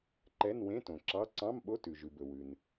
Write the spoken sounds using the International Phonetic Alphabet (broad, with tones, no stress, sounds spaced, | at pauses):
ǃ ɛ˧˥˧ n w ẽ˧˥˧ t õ˩ ǁ ɑ˧˥˧ ǀ ɑ̃˧˥˧ m ɓ o˧˥˧ t ʉ˩ ʒ ʉ˩ b ɵ˩ w ʉ˩ n